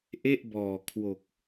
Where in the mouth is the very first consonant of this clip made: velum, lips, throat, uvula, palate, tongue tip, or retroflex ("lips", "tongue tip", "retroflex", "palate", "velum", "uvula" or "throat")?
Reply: throat